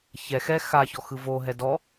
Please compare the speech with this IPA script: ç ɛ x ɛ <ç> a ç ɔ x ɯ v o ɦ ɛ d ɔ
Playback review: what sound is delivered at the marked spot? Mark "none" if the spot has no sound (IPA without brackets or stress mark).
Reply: x